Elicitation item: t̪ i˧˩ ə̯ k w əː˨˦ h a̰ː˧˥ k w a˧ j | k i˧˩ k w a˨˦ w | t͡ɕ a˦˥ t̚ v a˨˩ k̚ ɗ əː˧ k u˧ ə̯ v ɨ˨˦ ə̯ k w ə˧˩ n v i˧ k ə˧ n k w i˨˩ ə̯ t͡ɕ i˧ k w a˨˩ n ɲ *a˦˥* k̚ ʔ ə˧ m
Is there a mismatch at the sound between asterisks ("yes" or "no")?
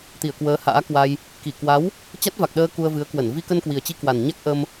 no